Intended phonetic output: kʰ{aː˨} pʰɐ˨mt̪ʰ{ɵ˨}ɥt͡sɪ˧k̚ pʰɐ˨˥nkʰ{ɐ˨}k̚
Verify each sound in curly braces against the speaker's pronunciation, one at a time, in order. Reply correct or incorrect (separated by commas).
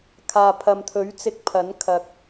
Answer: correct, incorrect, correct